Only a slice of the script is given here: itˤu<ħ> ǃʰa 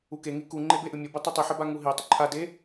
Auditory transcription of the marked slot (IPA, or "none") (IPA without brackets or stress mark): none